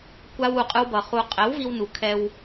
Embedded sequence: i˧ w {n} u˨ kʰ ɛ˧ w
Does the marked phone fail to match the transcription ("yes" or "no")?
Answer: no